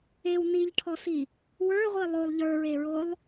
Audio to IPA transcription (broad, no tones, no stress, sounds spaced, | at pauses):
e w n i ʎ ʈʰ ɔ s i | w ə˞ ʁʷ i lˠ o lˠ ʎ ə˞ ɹ e ɹ o lˠ